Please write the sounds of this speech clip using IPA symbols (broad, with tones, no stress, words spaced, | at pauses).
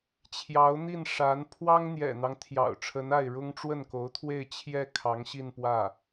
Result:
t͡ɕʰjɑ˧˥ʊ̯n̪i˥˩n ʂa˧˥n pʰwɑ˥ŋn̪jɛ̰˨˩n̪ɑ˦ŋ t̪ʰjɑ̰˨˩ʊ̯ʈ͡ʂʰə˧˥na˥˩ɪ̯ ɻʊ˥ŋʈ͡ʂwə˥˩nko˧˥ʊ̯t̪ʰwe˥˧ɪ̯ t͡ɕʰjɛ˥˩ kʰɑ˧˥ŋɕi˥˧npwä˥˩